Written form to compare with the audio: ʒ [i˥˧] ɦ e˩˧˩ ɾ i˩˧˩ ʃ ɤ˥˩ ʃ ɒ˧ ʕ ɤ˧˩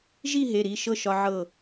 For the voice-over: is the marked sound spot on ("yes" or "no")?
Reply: yes